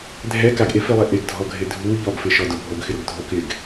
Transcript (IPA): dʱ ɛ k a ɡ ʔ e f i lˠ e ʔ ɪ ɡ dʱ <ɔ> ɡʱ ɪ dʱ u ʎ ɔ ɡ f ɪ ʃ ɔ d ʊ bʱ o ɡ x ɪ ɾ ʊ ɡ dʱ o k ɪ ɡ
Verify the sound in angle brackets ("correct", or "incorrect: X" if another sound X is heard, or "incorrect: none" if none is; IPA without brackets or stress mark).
correct